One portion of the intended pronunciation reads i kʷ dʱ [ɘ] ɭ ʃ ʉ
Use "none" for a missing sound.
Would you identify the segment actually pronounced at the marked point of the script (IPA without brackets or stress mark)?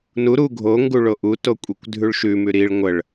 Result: ʉ